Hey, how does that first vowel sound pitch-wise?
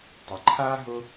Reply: low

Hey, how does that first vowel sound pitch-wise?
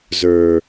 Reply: low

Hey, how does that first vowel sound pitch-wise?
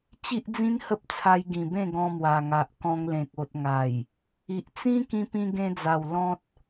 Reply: high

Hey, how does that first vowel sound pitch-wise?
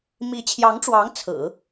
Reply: rising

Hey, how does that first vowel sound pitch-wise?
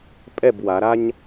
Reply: falling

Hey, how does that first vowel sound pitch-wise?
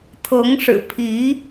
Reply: rising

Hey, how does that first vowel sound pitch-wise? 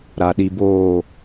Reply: low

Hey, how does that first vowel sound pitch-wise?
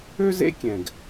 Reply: high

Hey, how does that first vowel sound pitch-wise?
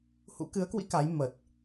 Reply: rising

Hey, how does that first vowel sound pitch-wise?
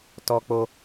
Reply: high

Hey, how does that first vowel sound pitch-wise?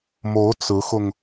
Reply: rising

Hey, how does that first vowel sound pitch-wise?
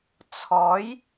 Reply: rising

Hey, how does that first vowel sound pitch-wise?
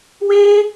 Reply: high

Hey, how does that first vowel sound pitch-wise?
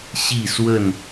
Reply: falling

